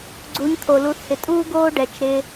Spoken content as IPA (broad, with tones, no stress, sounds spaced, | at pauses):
ɡ͡ǀ u˨˦ ɲ t̪ʰ o˨ l u˨˦ θ h ɪ˨ tʼ uː˦ ɡ oː˦ ɖ ɛː˨ t͡ʃ ɾ ɪː˧